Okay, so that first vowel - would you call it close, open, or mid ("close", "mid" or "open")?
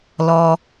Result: mid